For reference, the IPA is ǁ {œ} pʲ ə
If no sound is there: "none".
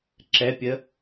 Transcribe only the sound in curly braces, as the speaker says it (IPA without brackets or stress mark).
ɛ